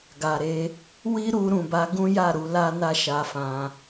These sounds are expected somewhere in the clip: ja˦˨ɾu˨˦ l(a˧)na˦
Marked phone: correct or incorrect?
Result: incorrect